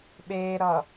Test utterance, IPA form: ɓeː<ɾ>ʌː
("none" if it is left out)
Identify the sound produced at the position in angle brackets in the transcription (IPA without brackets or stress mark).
ɾ